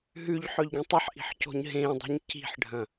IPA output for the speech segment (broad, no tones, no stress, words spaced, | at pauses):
ɦʉʎ ħɵʎɡĩtˤɐħʔi̤ħ co̤ɲɦẽdˤi̤ɲ ci̤ħɖʱɐ̃